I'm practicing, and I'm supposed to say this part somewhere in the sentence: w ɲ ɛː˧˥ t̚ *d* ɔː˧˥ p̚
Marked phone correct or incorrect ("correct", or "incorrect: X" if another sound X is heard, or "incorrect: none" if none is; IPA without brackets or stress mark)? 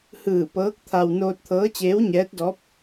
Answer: correct